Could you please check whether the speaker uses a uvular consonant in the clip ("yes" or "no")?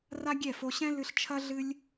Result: no